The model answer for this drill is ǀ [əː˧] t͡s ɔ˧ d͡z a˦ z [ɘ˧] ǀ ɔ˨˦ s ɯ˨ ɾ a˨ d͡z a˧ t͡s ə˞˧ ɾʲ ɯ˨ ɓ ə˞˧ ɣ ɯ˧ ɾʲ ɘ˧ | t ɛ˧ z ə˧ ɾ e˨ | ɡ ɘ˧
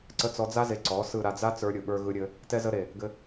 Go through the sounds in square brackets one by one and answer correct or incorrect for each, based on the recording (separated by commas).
incorrect, incorrect